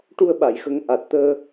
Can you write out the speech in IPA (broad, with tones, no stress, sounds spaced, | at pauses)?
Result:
ʈ u˧ ə̯ ɓ a˨˩˨ j x ə˨˩˦ ŋ ʔ a˨˩ t̚ t̪ əː˧